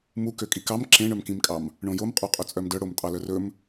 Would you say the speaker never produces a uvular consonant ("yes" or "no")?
no